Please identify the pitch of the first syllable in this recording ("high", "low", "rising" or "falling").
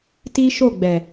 high